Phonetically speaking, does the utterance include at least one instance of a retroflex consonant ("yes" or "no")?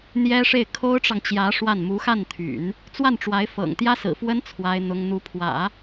yes